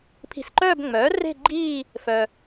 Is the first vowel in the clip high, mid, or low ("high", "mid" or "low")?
high